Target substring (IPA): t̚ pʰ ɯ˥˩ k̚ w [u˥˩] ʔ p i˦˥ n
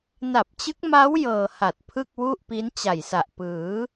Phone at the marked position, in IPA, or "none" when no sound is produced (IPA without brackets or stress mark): u˥˩